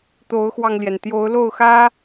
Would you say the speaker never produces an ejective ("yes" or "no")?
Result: yes